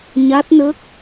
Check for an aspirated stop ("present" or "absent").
absent